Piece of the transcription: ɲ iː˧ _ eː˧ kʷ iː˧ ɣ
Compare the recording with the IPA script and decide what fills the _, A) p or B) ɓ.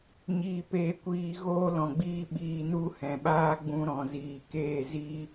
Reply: A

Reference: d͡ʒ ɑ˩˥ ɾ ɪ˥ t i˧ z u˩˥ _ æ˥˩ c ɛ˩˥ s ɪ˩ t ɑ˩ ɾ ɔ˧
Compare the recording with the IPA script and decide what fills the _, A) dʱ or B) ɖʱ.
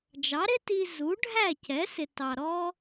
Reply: B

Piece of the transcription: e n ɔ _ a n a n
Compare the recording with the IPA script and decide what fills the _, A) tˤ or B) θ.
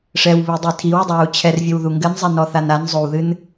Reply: B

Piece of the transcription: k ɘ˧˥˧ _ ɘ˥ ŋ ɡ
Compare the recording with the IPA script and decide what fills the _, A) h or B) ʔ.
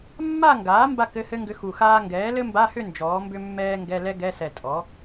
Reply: A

